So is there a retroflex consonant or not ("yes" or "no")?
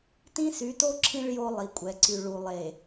yes